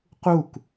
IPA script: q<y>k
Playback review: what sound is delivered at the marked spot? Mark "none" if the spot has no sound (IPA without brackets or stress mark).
u